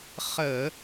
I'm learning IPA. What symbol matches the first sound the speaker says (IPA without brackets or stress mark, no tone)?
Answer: χ